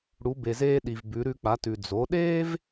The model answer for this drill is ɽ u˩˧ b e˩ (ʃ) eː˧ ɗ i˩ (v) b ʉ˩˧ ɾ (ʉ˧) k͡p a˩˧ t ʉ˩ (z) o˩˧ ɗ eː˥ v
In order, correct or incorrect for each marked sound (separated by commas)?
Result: incorrect, correct, correct, incorrect